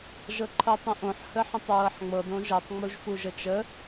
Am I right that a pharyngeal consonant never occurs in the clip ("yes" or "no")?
no